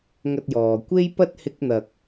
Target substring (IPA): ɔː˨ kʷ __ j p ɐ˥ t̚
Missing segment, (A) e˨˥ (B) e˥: B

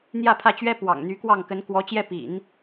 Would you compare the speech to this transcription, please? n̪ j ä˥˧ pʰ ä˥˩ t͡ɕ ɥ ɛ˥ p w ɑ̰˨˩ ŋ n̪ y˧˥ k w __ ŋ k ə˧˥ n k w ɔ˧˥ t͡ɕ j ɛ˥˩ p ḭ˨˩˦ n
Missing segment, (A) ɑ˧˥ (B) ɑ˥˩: B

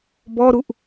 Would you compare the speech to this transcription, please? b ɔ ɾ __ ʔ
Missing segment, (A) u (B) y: A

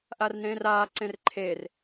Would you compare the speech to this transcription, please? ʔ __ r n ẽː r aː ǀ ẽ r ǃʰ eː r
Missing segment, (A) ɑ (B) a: B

